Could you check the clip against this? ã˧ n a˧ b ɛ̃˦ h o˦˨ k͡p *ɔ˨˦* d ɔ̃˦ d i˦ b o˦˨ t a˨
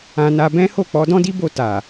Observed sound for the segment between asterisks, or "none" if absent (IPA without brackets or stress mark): ɔ˨˦